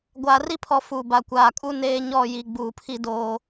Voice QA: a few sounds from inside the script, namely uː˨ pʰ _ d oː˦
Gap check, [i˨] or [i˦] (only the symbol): i˦